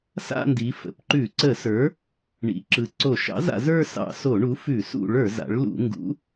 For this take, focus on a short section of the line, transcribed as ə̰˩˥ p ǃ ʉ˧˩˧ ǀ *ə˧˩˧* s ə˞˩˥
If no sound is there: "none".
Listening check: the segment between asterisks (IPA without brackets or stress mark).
ə˧˩˧